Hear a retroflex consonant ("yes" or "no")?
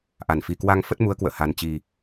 no